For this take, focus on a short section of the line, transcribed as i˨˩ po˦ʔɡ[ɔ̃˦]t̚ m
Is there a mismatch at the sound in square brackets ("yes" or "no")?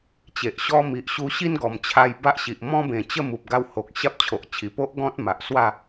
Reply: no